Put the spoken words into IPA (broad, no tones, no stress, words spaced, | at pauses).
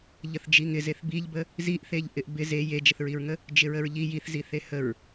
ʎəθd͡ʒiŋɪzeθ biʎbə | ziʔθeʎ ʔɪʔbɪ ze jed͡ʒəθɹiɹŋə | d͡ʒɪɹəɹʎi jiθziθe həɹ